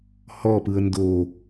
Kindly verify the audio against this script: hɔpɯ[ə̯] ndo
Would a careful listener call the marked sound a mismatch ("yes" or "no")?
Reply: no